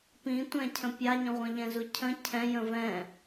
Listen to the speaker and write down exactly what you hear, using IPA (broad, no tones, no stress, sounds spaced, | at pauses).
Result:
p ĩ tʷ ɛ̃ cʰ ə̃ pʲ a ɲ ə̃ ʁʷ ə̃ ʎ ɛ̃ z u cʰ ə̃ cʰ ɛ̃ j ə̃ v ɛ̃